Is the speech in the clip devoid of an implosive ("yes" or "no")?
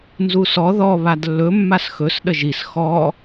no